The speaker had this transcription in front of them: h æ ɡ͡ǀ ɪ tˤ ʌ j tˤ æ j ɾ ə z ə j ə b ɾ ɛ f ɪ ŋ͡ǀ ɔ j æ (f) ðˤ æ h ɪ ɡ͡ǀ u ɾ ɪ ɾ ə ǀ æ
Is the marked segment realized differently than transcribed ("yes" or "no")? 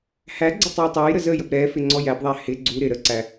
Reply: yes